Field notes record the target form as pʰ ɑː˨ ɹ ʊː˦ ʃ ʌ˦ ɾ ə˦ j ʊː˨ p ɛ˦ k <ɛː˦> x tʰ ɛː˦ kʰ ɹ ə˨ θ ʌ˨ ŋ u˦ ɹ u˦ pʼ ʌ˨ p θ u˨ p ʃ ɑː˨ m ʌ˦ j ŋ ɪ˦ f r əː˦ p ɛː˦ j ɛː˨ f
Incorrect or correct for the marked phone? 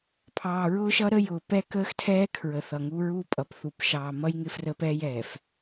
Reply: incorrect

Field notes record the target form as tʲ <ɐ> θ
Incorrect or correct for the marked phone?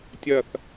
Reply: correct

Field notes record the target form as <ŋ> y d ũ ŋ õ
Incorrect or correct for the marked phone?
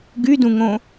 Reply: incorrect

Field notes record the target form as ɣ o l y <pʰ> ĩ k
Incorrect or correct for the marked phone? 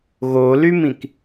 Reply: incorrect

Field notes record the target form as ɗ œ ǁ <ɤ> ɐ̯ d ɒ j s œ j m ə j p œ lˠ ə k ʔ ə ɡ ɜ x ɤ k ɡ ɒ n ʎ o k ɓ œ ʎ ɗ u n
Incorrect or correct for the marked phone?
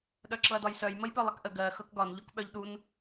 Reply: correct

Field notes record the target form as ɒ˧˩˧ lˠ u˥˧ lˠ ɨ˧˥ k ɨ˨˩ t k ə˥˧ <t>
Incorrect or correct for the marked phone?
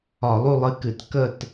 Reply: correct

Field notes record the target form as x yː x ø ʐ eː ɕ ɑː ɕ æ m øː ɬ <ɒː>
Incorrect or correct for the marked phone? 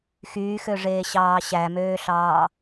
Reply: incorrect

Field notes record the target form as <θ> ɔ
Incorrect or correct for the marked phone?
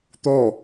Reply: incorrect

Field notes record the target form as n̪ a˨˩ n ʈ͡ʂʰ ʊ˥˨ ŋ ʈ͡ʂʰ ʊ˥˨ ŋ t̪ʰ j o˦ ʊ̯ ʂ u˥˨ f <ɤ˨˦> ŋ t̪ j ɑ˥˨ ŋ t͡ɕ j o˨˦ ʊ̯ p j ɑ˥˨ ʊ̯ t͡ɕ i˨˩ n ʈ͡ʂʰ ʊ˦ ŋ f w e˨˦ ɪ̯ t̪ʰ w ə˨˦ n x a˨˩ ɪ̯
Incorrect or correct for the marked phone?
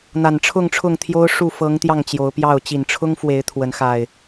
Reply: correct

